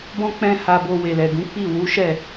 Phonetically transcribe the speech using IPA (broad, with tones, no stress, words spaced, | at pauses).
bɔ̃˦k͡pɛ̃˦ha˧bo˧ we˨lɛ˨ ɡũ˨˦k͡pi˦˨ wu˨˦ʃɛ˦˨